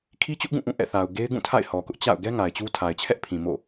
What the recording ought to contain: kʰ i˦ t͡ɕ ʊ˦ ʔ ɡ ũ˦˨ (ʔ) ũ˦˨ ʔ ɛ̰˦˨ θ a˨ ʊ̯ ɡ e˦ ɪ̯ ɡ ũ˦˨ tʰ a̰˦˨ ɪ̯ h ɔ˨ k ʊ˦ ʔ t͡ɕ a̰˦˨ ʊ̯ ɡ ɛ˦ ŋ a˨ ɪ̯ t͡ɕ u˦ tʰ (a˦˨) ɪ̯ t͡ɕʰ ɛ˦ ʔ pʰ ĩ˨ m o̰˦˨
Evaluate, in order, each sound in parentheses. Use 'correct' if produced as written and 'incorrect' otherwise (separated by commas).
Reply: correct, incorrect